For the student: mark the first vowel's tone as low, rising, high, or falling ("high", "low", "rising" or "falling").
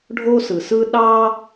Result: high